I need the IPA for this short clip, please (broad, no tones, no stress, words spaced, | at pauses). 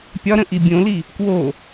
pʲɒɾə̃ ʔibʲõli | kwo